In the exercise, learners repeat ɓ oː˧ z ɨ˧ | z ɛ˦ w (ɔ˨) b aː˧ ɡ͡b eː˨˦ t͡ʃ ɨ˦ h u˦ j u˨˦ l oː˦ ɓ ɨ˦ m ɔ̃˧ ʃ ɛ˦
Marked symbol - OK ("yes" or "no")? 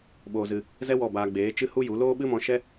no